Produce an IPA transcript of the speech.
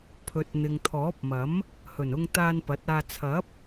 pʰ ɵ˨ t̚ n̪ ɪ˨ ŋ t̪ʰ ɔː˨˥ p̚ m ɐ˨˥ m | h ɵ˨˩ n ʊ˧ ŋ t̪ aː˧ n p ɐ˨˥ t̚ aː˧ t͡sʰ ɐ˨˥ p̚

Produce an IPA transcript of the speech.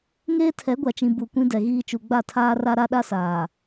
ŋ eː˦ tʰ ɛ˨˦ ɡʷ a˨ t͡ʃ ĩ˨ b u˨ kʷ ĩ˦ d ɛ˨ ɣ iː˦ t͡ʃ u˨ ɡ͡b a˦˨ tʰ aː˦ r a˦ ɾ a˦ ɗ a˦ s aː˨

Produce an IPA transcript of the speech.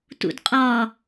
t ṵ d qʼ ɒ

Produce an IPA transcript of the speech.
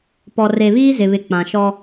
p ɔ˨ r e˨ β iː˦ z ɪ˨ β ɪ˨ k͡p ã˨ ʃ ɔ˦

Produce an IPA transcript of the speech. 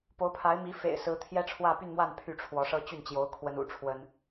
p o˧˥ ʊ̯ pʰ a˧˥ ɪ̯ m i˧˥ f ḛ˨˩ ɪ̯ s ɹ̩˧˥ t̪ʰ j ɛ˥ ʈ͡ʂʰ w ä˥˧ p y˥˧ n m w a˥˧ n pʰ y˥˩ ʈ͡ʂʰ w ɔ˧˥ ʂ ɤ˥ t͡ɕ y˥˩ n t͡ɕ j o˧˥ ʊ̯ kʰ w ə˥ n ṵ˨˩ ʈ͡ʂʰ w ə˥ n

